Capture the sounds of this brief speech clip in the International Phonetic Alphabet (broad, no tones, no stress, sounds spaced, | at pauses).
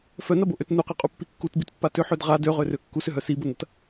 f œ n ɐ b o ʔ ø t n u q a qʼ u pː i kː u t b i t pː a t ʏ ħ ø d ʁ a d ø ʁ ø r ø kː u s ʏ ɦ œ s i b ʊ n ɐ t